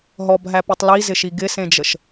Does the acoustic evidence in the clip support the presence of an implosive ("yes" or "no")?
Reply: no